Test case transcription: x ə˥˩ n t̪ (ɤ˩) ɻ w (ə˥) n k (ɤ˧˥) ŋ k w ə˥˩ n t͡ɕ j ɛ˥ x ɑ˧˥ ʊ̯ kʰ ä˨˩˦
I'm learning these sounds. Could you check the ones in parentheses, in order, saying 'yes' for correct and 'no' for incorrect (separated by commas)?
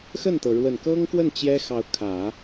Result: yes, no, no